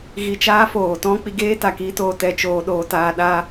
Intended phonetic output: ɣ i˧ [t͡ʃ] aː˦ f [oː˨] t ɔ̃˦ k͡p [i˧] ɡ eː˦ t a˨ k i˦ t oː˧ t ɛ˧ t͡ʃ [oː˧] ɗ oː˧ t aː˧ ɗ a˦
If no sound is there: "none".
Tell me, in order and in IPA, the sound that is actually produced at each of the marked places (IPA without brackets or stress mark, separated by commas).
t͡ʃ, oː˨, i˧, oː˧